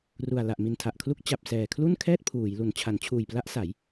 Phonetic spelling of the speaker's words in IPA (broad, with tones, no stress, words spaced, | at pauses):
ru˨˩a̯ la˨˩ʔ mi˨˩ntʰa˨˩ʔkʰlu˦˥k̚ t͡ɕa˨˩p̚sɛː˨˩kʰlu˥˩nkʰɛː˥˩t̚ pʰuː˩˦jlu˨˩n t͡ɕʰa˩˦nt͡ɕʰuː˨˩jpla˦˥ʔ sa˩˦j